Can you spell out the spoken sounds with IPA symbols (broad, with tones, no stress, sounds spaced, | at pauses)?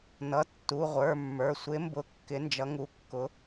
n ʌ˩˧˩ tː u˩˧˩ ʁʷ ə˞˩˧˩ mː ə˞˩˧˩ sʷ ɪ˨˦ m b ʊ˨˦ kː ɪ˨˦ n d͡ʒ ʌ˨˦ ŋ u˨˦ kː ʊ˨˦